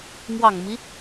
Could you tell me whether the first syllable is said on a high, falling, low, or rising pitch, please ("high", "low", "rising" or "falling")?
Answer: low